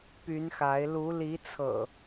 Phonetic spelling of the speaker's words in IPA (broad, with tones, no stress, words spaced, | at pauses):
py˨˦nxa˨˦ɪ̯ lu˨˦ li˨˦t͡sʰɤ̰˨˩